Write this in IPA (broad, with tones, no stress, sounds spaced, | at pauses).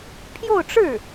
pʰ j o˥˧ ʊ̯ ʈ͡ʂ ɻ̩˥˩